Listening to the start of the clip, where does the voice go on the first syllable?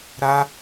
high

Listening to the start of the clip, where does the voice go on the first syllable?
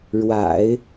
low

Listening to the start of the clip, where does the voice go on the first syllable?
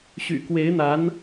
low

